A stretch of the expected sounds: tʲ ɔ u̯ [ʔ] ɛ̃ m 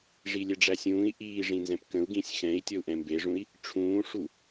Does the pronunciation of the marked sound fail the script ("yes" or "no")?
no